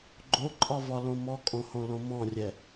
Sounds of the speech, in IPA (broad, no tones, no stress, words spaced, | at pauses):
ɡ͡ǃoǃʼɒvɒlõ mɔkʼõhõlõ mɔ̃rʲɛ